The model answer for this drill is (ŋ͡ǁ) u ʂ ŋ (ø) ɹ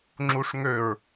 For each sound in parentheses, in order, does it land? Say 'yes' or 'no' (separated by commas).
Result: yes, yes